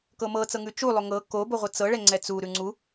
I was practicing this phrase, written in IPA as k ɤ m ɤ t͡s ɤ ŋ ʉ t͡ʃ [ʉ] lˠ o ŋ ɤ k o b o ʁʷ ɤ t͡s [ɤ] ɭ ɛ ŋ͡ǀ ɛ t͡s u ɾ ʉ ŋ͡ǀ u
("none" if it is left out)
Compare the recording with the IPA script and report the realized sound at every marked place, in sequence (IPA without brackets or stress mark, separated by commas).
u, ɤ